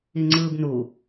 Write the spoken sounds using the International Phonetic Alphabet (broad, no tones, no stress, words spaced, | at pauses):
iŋ͡ǀɯːbnu